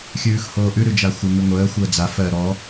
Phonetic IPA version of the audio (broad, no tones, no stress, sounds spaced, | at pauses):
xʲ ʉː x h oː ʔ ʉ ɾ ʉ d͡ʒ a xʷ ə ŋ ʉ ŋʷ əː xʷ əː d͡z a f ɜ ɾ ɔ